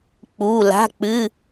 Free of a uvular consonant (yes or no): yes